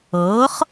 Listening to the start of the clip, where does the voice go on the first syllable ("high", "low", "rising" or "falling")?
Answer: rising